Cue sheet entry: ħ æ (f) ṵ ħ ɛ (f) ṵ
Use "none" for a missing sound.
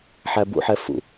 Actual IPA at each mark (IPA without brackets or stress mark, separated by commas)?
b, f